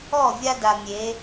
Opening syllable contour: falling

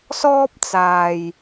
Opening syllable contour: high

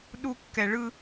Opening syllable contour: high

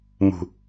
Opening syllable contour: low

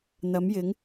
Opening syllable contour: rising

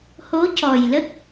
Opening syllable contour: rising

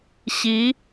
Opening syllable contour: rising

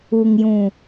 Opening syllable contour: low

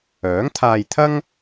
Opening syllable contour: rising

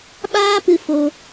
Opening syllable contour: high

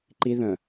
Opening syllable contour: high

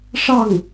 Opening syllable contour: falling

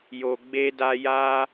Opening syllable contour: low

